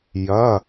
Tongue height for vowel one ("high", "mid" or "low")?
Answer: low